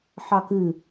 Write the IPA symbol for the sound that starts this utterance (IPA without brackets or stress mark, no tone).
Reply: ħ